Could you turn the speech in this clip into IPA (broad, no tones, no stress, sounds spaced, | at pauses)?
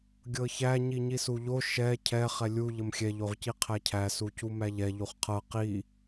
ɡʲ ɤ ç æ ɲ i ɲ i s u ʎ o ʃ ɛ cʰ ɛ χ ɛ lʲ u ʎ ə m xʲ ɛ ʎ o ʁ c i qʰ æ cʰ æ s u c u m æ ʎ ɛ ʎ u χ qʰ ɤ q i